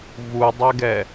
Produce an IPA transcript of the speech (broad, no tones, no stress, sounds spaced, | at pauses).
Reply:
v u dˤ ɛ ɡ ɛ